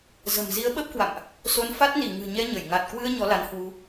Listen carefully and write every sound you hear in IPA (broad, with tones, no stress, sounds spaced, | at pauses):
z ə̤˨˩ m z i˨˦ ə̯ ɓ ə˦˥ p̚ k w a̰˧˨ m ʔ | s o˧ n f a˦˥ t̚ n i˧˩ ŋ ɨ̤˨˩ ɲ ɛ˧ ɲ ə˧˩ j ŋ a˨˩ t̚ k w ɨ˧ ə̯ ɲ ɔ˨˦ l a˨˦ n h w u˧